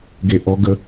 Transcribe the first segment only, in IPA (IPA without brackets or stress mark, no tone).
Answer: ɡ